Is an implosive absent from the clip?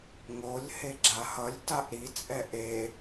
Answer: yes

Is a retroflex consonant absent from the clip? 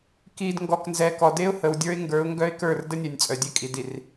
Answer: yes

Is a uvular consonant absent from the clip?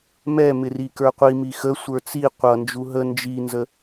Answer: no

